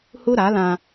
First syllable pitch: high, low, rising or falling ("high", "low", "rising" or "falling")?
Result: high